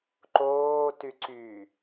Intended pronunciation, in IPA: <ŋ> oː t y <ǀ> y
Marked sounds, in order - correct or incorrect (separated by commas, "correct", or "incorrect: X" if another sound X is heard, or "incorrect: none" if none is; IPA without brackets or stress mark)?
incorrect: ǃ, correct